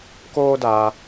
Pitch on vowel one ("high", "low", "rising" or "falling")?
high